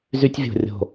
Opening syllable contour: high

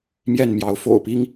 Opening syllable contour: falling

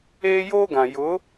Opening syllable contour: high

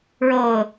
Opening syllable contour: falling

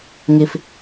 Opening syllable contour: low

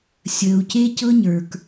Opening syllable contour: low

